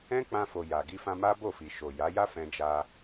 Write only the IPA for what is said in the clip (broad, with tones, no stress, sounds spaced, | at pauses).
ɛ̃˦ k͡p ã˧ f o˨ j a˨ ɡ i˧ f ã˧ m a˦ b o˦˨ f i˨ ʃ o˨ j a˨˦ j a˦ f ɛ̃˧ d͡ʒ a˧